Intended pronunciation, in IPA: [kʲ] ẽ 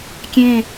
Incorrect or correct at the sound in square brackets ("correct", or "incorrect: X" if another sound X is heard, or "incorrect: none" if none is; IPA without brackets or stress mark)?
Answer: correct